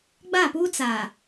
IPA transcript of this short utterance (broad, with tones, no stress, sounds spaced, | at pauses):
ɡ͡b a˦˨ p uː˦ t͡s a˨